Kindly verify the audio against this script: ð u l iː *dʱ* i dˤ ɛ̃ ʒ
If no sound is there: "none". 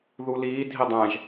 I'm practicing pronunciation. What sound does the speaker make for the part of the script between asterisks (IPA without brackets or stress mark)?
dʱ